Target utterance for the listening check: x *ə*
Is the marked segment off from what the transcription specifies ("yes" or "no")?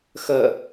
no